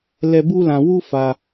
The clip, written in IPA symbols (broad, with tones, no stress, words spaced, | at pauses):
lɛ˦ bu˦lã˧wu˦ fa˧